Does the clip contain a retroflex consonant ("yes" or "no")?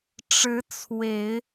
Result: yes